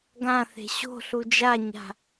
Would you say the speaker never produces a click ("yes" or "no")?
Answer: yes